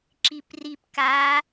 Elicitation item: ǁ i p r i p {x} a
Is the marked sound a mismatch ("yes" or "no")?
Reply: yes